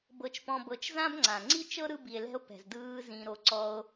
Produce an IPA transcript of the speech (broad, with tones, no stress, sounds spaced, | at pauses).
b ɤ˧ t͡ʃ p ɔ̃˧ b ɤ˧ t͡ʃ z ã˦ b ŋ͡ǀ ã˨ ŋ͡ǀ i˦ t͡ʃ ɤ˦ ɾ ɯ˧ b i˨ e̯ l ɛ̤˧ o̯ p ɛ̤˨ z d ɯː˧ z ĩ˧ ɾ o˧ ǀ ɔ˧ o̯